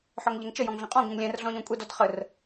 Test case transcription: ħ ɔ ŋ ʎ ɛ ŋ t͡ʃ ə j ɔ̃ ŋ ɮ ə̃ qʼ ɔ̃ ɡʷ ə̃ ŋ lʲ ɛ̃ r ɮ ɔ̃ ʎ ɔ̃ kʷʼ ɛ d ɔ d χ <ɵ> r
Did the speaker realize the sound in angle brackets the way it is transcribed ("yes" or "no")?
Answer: no